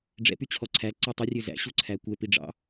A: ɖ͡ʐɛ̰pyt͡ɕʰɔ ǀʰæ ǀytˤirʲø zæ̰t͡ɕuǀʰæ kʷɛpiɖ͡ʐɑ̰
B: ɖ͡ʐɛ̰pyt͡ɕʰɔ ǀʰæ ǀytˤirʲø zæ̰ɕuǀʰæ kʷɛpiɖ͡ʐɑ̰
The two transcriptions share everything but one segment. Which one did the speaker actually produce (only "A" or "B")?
B